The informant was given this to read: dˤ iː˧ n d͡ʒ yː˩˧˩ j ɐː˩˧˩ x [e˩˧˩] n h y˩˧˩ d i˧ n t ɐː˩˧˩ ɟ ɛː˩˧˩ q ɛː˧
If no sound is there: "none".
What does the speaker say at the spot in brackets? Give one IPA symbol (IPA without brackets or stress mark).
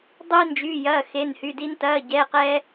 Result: e˩˧˩